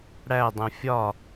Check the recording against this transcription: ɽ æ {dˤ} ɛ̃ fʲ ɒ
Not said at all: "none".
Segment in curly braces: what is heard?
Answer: dˤ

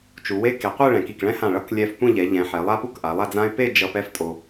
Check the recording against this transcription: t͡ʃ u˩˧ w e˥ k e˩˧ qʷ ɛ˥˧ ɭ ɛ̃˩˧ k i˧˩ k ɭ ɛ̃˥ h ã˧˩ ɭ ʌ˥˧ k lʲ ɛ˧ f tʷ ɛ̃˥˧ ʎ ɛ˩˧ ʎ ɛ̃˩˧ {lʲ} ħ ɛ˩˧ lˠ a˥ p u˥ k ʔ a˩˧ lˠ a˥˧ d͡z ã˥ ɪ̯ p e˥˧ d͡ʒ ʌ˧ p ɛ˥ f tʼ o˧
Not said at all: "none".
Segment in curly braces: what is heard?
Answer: none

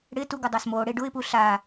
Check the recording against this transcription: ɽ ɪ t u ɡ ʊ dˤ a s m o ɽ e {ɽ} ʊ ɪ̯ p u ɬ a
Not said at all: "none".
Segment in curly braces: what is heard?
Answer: ɖ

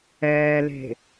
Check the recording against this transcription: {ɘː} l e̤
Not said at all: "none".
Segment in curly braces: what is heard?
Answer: ɛː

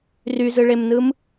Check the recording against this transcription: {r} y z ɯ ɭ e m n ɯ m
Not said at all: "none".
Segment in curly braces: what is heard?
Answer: r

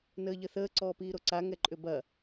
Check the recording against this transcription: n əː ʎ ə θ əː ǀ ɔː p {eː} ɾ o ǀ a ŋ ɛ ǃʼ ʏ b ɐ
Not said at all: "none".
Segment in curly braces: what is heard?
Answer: iː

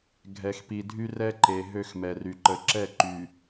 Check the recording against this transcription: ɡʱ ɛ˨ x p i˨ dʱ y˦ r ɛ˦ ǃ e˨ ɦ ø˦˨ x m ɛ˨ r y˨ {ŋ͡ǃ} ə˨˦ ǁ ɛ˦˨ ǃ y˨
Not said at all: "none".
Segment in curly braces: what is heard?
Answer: ǃ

